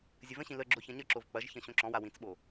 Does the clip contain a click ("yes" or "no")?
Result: yes